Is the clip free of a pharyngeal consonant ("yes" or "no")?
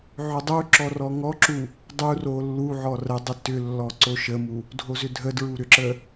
no